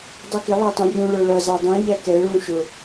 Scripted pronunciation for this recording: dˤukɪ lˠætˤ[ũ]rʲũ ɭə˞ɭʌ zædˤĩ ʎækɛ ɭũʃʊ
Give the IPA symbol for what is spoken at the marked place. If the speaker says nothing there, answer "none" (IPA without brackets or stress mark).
ũ